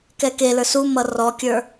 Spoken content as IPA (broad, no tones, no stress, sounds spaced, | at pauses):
k ɛ k e l ə˞ s u m ʌ r ɔ kʲ ə˞